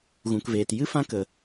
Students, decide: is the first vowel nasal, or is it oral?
nasal